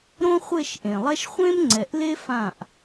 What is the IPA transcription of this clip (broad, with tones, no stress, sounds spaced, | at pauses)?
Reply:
ɾ õ˦ χʷ e˦˨ ʃ ʔ ẽ˨ lˠ ɛ˦ ʃ χʷ ẽ˦ m ŋ͡ǀ ɛ˨ ʔ l e˦ f ã˦˨ ʔ